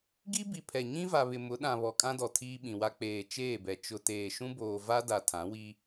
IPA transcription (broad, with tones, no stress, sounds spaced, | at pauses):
ɡ i˦ b i˨ pʰ ɛ˨ ɲ ĩ˦ v a˨ β ɪ˨ m ʊ˨˦ ɗ ã˨ β ɔ˨ kʼ ã˦ d ɔ˨ tʰ iː˦ ɓ ĩ˨ w a˦ k͡p eː˨ t͡ʃ eː˦˨ b ɛ˨ t͡ʃ ʊ˨ t eː˨ ʃ ũ˦ b oː˨ v a˦ d a˨ tʰ ã˨˦ w i˦